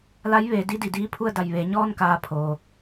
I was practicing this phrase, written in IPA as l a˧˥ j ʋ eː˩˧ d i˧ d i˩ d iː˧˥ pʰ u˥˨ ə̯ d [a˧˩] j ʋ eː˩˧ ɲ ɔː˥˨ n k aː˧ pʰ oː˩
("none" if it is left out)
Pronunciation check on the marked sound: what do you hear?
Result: a˧˩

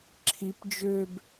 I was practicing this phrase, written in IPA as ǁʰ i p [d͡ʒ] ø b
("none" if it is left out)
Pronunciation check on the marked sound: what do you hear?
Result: d͡ʒ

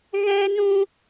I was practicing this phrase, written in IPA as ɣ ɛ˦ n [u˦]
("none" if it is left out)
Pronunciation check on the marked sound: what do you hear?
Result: ũ˦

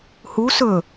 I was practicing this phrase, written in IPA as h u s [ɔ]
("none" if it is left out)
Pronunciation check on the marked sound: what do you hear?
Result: ɵ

